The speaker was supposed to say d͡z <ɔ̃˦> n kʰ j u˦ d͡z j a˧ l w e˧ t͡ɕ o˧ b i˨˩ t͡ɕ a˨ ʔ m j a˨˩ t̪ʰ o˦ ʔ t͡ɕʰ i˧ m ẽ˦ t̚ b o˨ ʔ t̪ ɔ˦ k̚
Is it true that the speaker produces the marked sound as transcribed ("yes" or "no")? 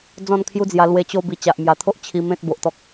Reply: no